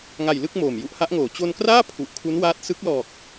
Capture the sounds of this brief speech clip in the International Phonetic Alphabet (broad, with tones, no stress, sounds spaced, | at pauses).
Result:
ŋ a˨˩ j l ɯ˥˩ k̚ m oː˨˩ m j u˦˥ ʔ h a˦˥ ʔ ŋ oː˩˦ t͡ɕ o˧ n k r aː˥˩ pʰ u˨˩ ʔ kʰ u˦˥ n w aː˦˥ t̚ s ɯ˦˥ k̚ l ɔː˨˩ k̚